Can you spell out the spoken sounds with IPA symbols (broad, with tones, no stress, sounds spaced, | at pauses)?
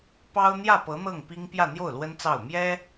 p ɑ˥ ʊ̯ n̪ j ä˥˩ p ɤ˧˥ n̪ ɤ˥˩ ŋ p i˥ ŋ p j ä˥˧ n̪ j o˥˩ ʊ̯ l w ə˥ n t͡s ɑ˥˩ ʊ̯ m j ɛ˥